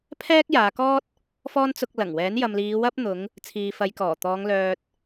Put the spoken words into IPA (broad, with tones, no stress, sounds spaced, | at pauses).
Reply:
pʰ ɛː˥ k̚ j aː˨˧ k ɔː˥ t̚ | f ɔː˥ n t͡s ʊ˧ k̚ l ɐ˨˩ ŋ w ɛː˨˥ n j ɐ˨ m l iː˨˧ w ɐ˥ p̚ n̪ ʊ˨˧ ŋ | t͡sʰ iː˨ f ɐ˨˧ j k ɔː˨˩ t̪ ɔː˨˧ ŋ l œː˨ t̚